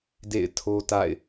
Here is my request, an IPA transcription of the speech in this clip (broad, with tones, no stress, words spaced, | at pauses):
dḛ˦˨ɪ̯tʰo˦ ta̰˦˨ɪ̯